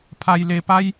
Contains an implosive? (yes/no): no